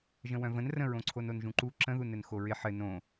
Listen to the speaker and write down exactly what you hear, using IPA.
ʒ ə̃ w œ̃ v ə̃ n r ə̃ ɹ õ ǀʰ o n o n ʒ ũ ǃ u ǁ ə̃ ð u n ɘ n x o ɹ ɪ ħ ɘ n õ

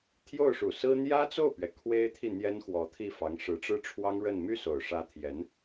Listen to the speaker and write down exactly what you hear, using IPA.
t̪ʰ j o˥˩ ʊ̯ ʂ u˨˩ s ɹ̩˥ n̪ j ä˥ t͡s o˥˩ ʊ̯ p ɥ ɛ˩ kʰ w e˥ ɪ̯ t̪ʰ i˥˩ n̪ j ɛ˥ n x w ɔ˧˥ t̪ʰ i˥˩ f ɑ˧˥ ŋ ʂ ɻ̩˧˥ ʈ͡ʂ ɻ̩˥ ʈ͡ʂʰ w ɑ˥ ŋ ɻ ə˥˧ n m y˥˩ s o˨˩ ʊ̯ ʂ ä˧˥ t̪ʰ j ɛ˧˥ n

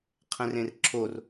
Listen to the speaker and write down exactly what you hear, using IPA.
qʰ ɛ̃ r ẽ r ǁʰ o r

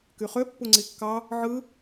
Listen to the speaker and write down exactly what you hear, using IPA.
k y χ ø pː u ŋ͡ǀ i kː ɑ | ʕ ɯ

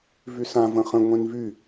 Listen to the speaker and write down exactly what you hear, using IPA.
v y s ã v ə̃ χ ə̃ ŋʷ ẽ n v y

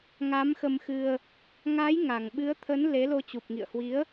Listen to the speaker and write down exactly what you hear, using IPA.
ŋ a˨˦ m x ə˧ m x ɨ˧ ə̯ | ŋ a˨˦ j ŋ a˨˩ ŋ ɓ ɨ˨˦ ə̯ t̪ʰ ə˨˦ n l e˨˦ l o˧ t͡ɕ u˨˩ p̚ ŋ ḭ˧˨ ə̯ h w i˨˦ ə̯

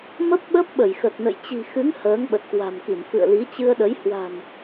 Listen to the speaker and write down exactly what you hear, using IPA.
m ə˦˥ p̚ ɓ ə˦˥ p̚ ɓ ə˧˩ j x ə˨˩ t̚ n ə̰˧˨ j t͡ɕ i̤˨˩ x ɨ˨˦ ŋ h əː˨˦ ŋ ɓ ə˨˩ t̚ k w a̤˨˩ m k i˧˩ m f ɨ̰˧˨ ə̯ l i˨˦ t͡ɕ ɨ˧ ə̯ ɗ ə˨˦ j h w a̤˨˩ n

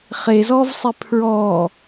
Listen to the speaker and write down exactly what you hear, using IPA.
χ e z ɔː v sˤ e pʰ ɹ ɔː

